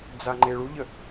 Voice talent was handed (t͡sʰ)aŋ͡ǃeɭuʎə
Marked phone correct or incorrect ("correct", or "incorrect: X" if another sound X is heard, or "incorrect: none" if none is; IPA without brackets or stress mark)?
incorrect: d͡z